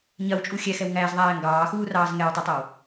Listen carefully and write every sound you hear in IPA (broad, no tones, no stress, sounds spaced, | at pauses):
ɲ ɐ w t͡ʃʼ u xʲ ɛ x ɛ w ŋ æː z ðˤ æː ŋ ɡ ɑː x uː r ɑː z ŋ ɛ w tˤ ɛ tˤ ɐ w